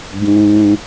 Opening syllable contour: low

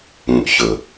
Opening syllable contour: low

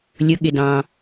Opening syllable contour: rising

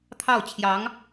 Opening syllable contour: falling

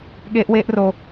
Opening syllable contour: high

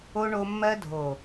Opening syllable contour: high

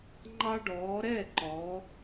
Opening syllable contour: high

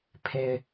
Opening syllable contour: low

